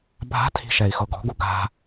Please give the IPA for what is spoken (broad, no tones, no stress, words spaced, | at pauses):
bʱa̤tʰi̤ʃɛi̯xɤ ɡɔ̤ɡu ɡa̤